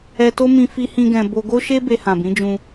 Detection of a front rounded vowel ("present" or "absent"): absent